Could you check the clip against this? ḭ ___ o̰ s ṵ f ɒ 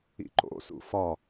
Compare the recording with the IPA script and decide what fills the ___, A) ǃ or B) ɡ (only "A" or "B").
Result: A